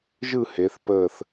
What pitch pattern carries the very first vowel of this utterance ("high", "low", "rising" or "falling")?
falling